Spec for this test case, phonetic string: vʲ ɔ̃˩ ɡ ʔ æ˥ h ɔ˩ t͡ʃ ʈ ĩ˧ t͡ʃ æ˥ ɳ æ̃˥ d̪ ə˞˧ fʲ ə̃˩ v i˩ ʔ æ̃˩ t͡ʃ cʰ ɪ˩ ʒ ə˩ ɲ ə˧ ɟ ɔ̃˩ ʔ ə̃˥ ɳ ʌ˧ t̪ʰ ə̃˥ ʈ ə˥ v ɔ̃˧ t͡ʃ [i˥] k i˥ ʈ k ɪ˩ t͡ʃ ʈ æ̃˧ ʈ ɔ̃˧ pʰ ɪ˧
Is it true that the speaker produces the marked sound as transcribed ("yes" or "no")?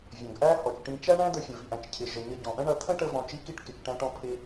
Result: yes